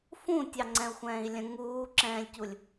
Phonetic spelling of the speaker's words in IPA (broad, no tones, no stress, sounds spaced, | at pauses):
f ũ tʲ ɑ ŋ͡ǀ ɛ̃ u̯ xʷ ɛ̃ː i̯ lʲ ə̃ ŋ uː ǁ ɛ̃ː lʲ c u lʲ